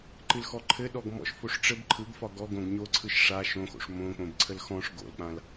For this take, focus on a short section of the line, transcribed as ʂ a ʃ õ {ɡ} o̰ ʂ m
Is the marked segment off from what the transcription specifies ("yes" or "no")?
yes